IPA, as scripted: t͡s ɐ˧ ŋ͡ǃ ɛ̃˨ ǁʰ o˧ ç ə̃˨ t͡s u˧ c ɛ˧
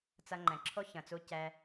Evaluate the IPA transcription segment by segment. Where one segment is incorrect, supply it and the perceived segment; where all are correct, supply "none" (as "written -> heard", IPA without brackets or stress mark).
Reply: none